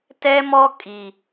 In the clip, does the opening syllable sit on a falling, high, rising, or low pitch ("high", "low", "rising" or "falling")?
high